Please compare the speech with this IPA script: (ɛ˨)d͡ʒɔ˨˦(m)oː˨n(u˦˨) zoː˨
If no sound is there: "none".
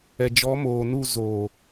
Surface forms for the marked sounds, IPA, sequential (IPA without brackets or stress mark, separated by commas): ɛ˨, m, u˦˨